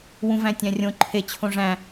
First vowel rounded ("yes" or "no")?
yes